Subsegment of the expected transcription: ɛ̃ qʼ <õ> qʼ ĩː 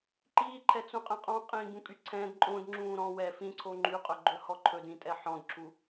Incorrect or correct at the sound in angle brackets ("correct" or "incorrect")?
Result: incorrect